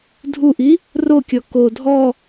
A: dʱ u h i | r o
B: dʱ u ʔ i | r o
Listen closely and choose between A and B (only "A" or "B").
B